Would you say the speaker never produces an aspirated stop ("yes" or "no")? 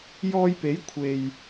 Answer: no